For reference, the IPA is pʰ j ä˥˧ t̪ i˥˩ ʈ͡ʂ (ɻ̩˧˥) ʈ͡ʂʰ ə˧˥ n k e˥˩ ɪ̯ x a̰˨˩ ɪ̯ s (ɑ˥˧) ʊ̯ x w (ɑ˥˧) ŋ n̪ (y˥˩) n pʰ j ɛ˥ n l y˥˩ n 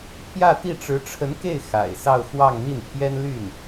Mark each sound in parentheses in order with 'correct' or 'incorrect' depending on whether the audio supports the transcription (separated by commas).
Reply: correct, correct, correct, incorrect